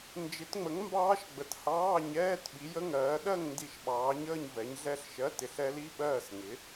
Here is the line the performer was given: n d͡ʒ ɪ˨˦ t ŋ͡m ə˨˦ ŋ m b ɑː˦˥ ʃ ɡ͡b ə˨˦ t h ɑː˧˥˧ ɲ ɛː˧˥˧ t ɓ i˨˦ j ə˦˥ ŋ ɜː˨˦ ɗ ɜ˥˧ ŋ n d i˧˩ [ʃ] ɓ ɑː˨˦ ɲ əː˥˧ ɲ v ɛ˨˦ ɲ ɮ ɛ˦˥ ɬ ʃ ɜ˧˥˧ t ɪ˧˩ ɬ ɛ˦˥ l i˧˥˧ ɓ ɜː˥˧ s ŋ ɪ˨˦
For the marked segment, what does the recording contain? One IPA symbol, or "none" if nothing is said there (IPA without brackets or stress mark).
ʃ